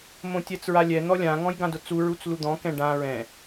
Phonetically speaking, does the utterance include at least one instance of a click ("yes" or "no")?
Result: no